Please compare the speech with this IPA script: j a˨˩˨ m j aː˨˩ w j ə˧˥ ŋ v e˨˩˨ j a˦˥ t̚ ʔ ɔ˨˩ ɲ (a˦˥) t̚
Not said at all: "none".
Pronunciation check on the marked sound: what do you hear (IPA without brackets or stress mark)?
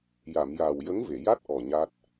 a˦˥